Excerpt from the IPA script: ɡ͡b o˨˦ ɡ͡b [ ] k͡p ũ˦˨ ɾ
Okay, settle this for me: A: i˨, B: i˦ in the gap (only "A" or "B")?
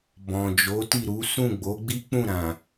B